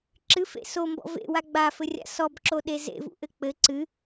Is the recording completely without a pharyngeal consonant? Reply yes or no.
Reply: yes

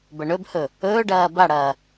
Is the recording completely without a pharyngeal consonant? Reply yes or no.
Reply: yes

